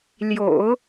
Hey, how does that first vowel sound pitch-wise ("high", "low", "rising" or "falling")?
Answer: low